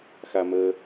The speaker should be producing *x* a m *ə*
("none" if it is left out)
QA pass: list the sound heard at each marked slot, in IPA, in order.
x, ə

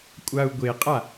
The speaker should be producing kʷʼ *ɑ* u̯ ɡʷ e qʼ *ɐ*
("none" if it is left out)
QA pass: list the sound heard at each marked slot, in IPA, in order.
a, a

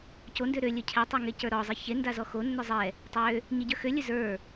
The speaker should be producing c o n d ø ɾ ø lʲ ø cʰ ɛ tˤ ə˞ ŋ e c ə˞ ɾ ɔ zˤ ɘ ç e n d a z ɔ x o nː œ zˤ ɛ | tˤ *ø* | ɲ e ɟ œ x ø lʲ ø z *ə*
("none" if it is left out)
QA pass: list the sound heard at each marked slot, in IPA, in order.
ø, ə˞

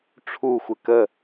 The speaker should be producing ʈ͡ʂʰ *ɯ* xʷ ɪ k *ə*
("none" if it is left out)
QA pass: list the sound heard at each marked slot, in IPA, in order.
u, ə

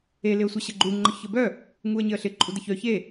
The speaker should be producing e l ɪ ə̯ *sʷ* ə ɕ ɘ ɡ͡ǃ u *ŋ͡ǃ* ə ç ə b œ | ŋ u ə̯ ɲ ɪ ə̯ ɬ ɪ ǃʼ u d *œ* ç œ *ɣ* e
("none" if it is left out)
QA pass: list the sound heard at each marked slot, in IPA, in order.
sʷ, ŋ͡ǃ, ə, ç

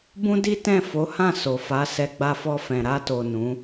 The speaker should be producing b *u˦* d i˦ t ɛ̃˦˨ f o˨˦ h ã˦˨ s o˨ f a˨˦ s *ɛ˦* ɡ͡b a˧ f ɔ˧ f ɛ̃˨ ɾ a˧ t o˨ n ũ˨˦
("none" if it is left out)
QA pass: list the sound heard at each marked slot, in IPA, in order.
ũ˦, ɛ˧

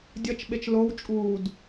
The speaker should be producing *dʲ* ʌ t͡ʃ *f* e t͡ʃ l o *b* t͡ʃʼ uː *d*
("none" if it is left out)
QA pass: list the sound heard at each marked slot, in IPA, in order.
dʲ, ɓ, w, d

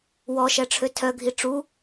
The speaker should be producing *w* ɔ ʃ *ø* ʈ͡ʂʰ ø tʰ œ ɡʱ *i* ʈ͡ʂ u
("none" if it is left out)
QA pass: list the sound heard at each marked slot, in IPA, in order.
w, ɛ, i

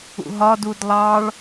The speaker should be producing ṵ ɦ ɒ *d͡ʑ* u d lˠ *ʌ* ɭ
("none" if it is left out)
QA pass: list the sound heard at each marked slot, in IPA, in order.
d, ɑ

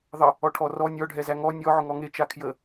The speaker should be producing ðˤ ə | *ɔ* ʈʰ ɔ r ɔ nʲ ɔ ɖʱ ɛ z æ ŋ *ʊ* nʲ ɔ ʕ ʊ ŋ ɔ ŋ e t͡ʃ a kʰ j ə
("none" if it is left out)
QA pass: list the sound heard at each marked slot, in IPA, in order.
ɔ, ɔ

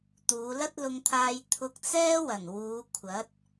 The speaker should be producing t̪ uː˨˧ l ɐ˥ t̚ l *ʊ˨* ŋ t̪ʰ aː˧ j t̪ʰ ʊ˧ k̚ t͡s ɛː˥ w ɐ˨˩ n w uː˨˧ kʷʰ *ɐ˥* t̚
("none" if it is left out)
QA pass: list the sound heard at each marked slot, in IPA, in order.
ʊ˧, ɐ˨˥

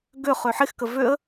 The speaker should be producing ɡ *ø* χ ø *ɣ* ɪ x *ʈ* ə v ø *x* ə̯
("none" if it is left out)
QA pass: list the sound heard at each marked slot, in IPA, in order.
ø, ħ, k, none

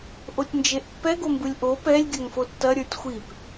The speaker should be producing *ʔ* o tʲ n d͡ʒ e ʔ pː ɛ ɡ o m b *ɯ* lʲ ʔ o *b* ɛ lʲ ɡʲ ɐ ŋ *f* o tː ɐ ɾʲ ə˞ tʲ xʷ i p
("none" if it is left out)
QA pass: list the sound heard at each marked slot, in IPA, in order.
ʔ, ɯ, p, f

